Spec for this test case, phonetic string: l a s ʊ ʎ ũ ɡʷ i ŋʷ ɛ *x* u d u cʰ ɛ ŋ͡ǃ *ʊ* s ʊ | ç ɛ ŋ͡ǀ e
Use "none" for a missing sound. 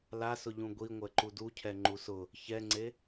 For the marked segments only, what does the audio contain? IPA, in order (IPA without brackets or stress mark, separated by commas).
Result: ǃ, u